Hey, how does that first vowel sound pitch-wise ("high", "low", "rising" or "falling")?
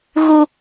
high